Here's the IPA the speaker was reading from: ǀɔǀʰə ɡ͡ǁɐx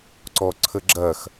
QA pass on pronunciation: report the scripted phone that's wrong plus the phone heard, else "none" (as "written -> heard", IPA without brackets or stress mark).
none